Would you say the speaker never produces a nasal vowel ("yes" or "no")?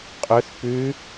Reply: yes